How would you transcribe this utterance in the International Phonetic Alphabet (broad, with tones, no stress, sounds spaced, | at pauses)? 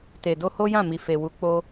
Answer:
t e˨ d o˧ h o˦ j ã˦˨ m i˨ f e˨ w u˨˦ k͡p o˦